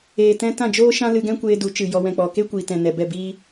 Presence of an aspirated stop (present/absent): absent